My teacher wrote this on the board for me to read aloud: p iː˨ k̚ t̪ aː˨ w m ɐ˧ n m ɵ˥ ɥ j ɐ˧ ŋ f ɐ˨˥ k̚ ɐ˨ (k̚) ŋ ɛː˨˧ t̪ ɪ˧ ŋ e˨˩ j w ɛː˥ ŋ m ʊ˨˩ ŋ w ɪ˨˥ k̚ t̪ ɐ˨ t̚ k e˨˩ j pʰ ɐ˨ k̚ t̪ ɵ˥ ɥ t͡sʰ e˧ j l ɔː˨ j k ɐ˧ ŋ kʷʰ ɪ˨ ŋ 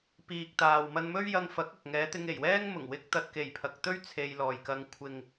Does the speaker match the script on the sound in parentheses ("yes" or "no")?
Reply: yes